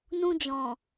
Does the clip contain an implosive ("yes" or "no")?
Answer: no